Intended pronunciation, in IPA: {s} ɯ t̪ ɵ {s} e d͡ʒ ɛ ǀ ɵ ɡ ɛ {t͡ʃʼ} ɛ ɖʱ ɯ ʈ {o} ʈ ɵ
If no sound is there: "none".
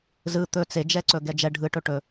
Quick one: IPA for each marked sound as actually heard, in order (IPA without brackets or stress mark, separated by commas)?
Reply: z, t͡s, d͡ʒ, ɵ